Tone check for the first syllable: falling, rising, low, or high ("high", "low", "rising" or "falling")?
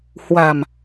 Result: low